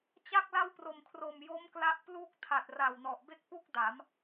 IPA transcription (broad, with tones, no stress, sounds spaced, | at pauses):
t͡ɕ a˥˩ k̚ l a˥˩ w p r o˨˩ m kʰ r o˨˩ m j o˦˥ m k l a˦˥ ʔ p l uː˥˩ k̚ tʰ a˨˩ t̚ r aː˨˩ w n ɔ˨˩ ʔ b e˥˩ k̚ p u˥˩ k̚ d a˩˦ m